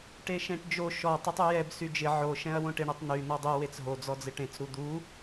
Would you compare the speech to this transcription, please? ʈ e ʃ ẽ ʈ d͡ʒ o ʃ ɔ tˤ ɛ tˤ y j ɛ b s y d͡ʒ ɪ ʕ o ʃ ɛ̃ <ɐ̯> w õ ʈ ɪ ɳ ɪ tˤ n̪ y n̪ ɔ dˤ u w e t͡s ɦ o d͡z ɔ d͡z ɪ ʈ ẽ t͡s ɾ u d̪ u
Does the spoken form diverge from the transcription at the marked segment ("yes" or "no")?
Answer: no